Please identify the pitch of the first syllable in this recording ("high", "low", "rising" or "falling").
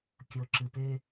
low